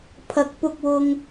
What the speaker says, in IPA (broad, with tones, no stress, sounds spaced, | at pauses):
pʰ ɐ˧ k̚ p ʊ˧ k̚ w ʊ˧ ŋ